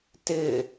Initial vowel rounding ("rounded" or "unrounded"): unrounded